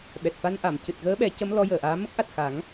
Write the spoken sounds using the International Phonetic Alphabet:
ɓɛ˨˩t̚fa˧n ʔa˨˩˨mcɨ˨˩t̚ɣəː˧˥ɓɛ˨˩˦ cə˧˥m lɔ˧˥jəː˨˩˨ʔaː˧˥ mə˦˥k̚ʔa˨˩t̚ xa˨˩˦ŋ

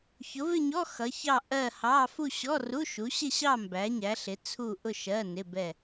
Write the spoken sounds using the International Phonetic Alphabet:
çʊ˨˥vɪ˥˧ɲɔ˧˥˧ xʌ˨˥çɑ˥˧ ʔɜ˥˧hɑ˧˥˧ fu˥˧ɕɔ˧˥˧ru˧˥˧ʃu˨˥ ɕɪ˥˧ɕɑ˥˧ mbæ˨˥ɲæ˨˥ɬɪ˨˥ t͡sʰu˥˧ ʔʊ˥˧ ʃɜ˧˥˧nɪ˧˥˧bɛ˥˧

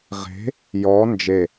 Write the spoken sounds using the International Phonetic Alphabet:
ʁe̤ | jɔ nd͡ʒe

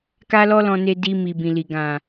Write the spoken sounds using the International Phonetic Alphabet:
ka˦lɔ˦lɔ̃˧ne˧ di˧ mi˨bĩ˨li˨ ɡã˨

